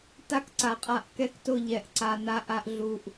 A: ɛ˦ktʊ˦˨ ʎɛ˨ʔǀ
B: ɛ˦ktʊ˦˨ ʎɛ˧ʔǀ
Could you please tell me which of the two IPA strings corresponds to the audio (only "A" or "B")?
B